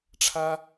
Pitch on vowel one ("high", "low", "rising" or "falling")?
high